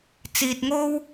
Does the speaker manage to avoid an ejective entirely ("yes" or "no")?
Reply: yes